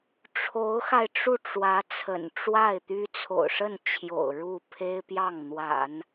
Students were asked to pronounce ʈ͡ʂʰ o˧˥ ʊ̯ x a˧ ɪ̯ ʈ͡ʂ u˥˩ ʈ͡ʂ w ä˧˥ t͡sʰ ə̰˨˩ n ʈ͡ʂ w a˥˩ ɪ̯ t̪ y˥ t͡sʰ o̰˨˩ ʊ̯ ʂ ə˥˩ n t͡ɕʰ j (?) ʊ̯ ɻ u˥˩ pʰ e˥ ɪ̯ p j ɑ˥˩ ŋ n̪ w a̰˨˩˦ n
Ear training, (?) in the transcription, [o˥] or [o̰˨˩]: o̰˨˩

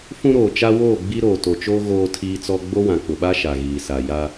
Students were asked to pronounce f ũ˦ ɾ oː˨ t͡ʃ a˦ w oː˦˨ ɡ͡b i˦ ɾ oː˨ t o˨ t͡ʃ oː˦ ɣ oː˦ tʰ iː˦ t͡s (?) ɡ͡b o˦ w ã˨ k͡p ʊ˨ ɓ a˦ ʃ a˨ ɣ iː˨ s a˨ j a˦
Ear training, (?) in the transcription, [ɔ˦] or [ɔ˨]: ɔ˦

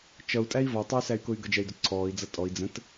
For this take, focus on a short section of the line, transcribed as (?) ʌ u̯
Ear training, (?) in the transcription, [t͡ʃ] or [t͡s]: t͡ʃ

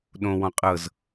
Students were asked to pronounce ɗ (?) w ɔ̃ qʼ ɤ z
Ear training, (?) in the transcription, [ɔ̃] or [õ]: õ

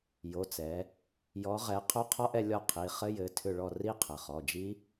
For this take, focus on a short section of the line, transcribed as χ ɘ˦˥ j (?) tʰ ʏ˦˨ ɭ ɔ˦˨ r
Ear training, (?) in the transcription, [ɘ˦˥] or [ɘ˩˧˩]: ɘ˩˧˩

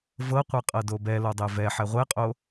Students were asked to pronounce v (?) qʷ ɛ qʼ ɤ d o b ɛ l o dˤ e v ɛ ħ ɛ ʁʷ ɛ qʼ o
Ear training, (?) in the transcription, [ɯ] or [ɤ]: ɤ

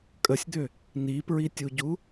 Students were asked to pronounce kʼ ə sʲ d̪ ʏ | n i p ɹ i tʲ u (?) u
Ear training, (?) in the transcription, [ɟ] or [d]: ɟ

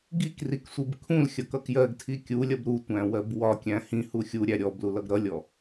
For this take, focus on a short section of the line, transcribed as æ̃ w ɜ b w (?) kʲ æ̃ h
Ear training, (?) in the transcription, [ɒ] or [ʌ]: ɒ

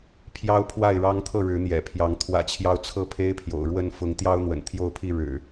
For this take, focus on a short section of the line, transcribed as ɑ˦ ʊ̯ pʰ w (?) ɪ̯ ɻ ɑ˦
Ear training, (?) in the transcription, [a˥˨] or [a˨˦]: a˥˨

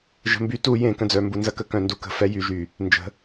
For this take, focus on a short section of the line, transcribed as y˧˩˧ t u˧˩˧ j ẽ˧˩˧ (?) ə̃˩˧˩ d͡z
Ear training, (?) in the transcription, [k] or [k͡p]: k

